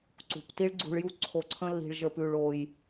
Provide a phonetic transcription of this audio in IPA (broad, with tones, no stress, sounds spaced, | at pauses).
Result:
ǀ ṳ˨ p t i˦ ɭ ɡ͡ǀ ṳ˧ ɭ j u˦ ǀʰ o˧ ǀʰ ə̃˦ lː i̤˧ ɭ ʒ ə˞˧ p ʉ˧ ɭ o˧ j